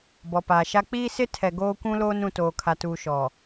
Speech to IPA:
bɔ˨paː˨ʃa˦ k͡piː˦sɪ˦ tʰɛ˨ɡoː˦kʷũ˦loː˦n ũ˨toː˨kʰa˨ tuː˨ʃɔ˨

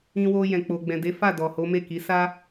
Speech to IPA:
ĩ˧wo˧ jɛ̃˨k͡po˨ ɡ͡bɛ̃˨de˨˦fa˦˨ dɔ˨ho˨˦me˦˨ki˨˦ sa˦

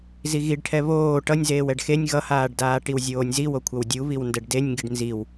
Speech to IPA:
ziɣiɖʈʰɛ βoː ʈʌnʲzeːw ɛɖxenʲ ɣʌhaːɖdaː ʈiwzʲoːnʲziwo kʷʰʌwdʲuβiw ndɛɖdenʲŋɡiɖ nziw

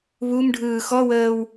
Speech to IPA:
βumɖʱɯː xɔwəːw

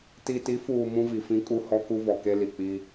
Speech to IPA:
ti˨ti˨˦fuː˨ mũ˦vi˨fĩ˦ kʼu˦hɔ˦ ku˦vɔ˨ke˦ li˨k͡pi˦

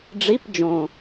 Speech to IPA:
ɖ͡ʐi˧˥˧p d͡ʒõ˨˩

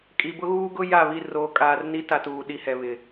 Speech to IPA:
kʼi˨bʊ˦ɣuː˦ɡʊ˦ ja˦˨βi˦˨ roː˨kʼaː˨rni˦ ta˦tuː˨ ɗi˦hɛ˨βɪ˨

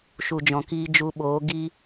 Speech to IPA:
ʃu˨d͡ʒɔ̃˨kiː˧ d͡ʒu˧ɓoː˨˦ ɡi˦

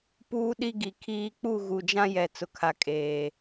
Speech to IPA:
puː˦ɗi˦ɡi˨kʰiː˦ k͡pu˦˨ɣu˨d͡ʒã˦jɛ˨ t͡sʊ˨kʰa˨ kʼeː˨

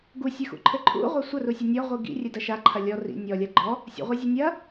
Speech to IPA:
ɡusʲɨxṵ ǃʰɘǃʰṵ ʁʷasʷɐrusʲɘ nʲɔʁʷi ɡḭ rʲɘdɐʃa ǃʰɐlʲɔ rḭ nʲɔ lʲaɡ͡ǃɔ | sʲṵʁʷazʲe nʲɐ

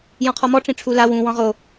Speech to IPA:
jɔ̃qʰɔmɔ ʈ͡ʂĩʈ͡ʂʰula wũ wɔ̃ʁo

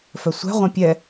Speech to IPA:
fœsʷɛ̤ʁʷɛ̃ pʲɛ

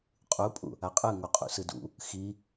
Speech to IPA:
qʼupʼṵ | aqʼɯ ŋoqʼṵsɯdṵ | xi

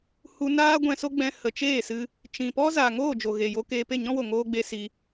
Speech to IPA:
hu˧naː˦ ɡʷɛ̃˧so˦ɡ͡bɛ̃˧ hə˨t͡ʃeː˦˨sɨ˧ | t͡ʃĩ˨pɔ˦ zaː˨ŋoː˦˨ d͡ʒo˨ɣe˨jo˧ keː˧pe˦˨ɲɔ̃˦wo˨ ŋoː˧ɡ͡be˧ si˧

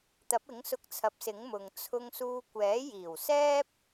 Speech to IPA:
t̪ɐ˨˥p̚ɪ˨˥ŋsʊ˧k̚t͡sʰɐ˨˥p̚ sɪ˨˥ŋmʊ˨ŋ t͡sʰʊ˧ŋsuː˧ kʷɛː˨˥jiː˨˩w sɛː˥p̚

